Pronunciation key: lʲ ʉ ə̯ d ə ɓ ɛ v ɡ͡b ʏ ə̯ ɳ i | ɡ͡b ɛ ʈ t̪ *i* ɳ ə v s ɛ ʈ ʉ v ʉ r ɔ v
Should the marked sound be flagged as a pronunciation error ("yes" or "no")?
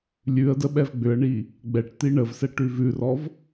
no